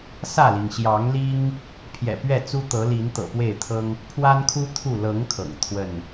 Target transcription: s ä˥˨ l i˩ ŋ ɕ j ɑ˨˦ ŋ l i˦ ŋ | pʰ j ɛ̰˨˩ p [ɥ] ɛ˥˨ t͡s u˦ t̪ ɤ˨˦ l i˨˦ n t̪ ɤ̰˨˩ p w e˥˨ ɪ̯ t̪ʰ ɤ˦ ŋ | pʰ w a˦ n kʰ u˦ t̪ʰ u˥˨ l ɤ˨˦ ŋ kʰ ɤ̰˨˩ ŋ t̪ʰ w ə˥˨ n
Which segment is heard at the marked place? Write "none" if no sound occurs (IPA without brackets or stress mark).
ɥ